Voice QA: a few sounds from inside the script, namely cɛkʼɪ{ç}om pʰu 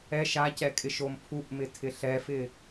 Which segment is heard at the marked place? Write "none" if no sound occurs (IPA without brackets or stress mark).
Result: ʃ